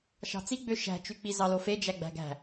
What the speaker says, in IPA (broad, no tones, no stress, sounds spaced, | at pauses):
ʃ ɑ̤ t͡s i ɡ͡b ø ʃ æ̤ t͡ʃ y k͡p i z ɑ l o f e d͡ʒ æ ɡ͡b æ̤ ɡ æ̤